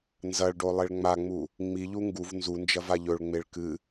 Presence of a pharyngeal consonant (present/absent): absent